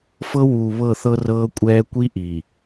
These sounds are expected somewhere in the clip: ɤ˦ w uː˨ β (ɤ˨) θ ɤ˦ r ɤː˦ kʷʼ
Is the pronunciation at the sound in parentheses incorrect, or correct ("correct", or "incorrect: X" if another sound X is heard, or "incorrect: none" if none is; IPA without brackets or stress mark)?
incorrect: ɤ˦˨